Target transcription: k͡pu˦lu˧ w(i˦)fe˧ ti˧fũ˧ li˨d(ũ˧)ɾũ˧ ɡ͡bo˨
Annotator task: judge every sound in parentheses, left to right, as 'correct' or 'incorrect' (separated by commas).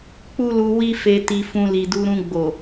correct, incorrect